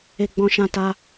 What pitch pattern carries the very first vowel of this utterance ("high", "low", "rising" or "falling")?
high